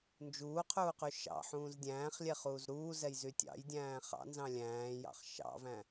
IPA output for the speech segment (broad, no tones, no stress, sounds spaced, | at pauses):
n d͡ʒ uː qʰ uː q y ʃ ɑ̰ ħ ũː z dʲ æ̃ː χ lʲ ɛ χ uː z ɾ uː z ɛ j z y tʲ ɑ̰ j dʲ æ̃ː χ ɑ̰ n z ɑ̃ lʲ æ̃ː j ɑ̰ χ ʃ ɑ̰ v æ̃